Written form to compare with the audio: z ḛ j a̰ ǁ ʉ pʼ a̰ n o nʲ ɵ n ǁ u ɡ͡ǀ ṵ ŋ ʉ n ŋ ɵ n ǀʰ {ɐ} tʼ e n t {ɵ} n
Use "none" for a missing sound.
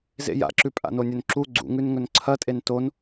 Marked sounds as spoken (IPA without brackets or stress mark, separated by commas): ɐ, o